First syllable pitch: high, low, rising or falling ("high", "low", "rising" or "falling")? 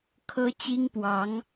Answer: high